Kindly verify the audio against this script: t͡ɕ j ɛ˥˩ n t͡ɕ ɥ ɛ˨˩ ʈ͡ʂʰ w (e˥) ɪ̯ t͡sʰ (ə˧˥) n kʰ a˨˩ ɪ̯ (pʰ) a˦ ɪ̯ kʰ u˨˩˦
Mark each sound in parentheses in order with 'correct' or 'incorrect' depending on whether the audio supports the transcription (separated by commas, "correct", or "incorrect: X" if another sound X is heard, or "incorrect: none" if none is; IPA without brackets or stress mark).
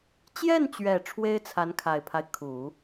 correct, incorrect: a˧˥, correct